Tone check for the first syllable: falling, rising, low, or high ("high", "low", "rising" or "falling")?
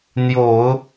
low